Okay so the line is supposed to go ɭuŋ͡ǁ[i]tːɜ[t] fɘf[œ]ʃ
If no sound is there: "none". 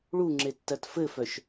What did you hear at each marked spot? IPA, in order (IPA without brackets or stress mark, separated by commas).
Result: e, t, œ